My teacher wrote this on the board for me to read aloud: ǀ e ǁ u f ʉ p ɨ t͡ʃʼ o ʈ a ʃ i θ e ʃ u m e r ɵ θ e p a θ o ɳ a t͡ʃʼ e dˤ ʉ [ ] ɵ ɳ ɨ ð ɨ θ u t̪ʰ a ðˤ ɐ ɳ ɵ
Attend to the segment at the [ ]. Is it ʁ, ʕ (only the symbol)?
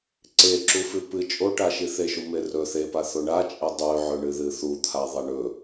ʕ